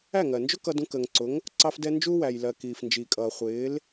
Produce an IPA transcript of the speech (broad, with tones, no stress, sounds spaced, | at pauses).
æ˥˩ ŋ ɜ˩ n d͡ʒ ʊ˥ k ʌ˧ d ũ˧ k əː˩ ŋ ǀ ʊ˩˥ ŋ | ǀ ɑ˧ f d ɛ˧ n d͡ʒ u˧ w æ˩ j l ɜ˩ k iː˩ f n d͡ʒ iː˩ kʼ ʌː˩ χʷ ɪː˩˥ l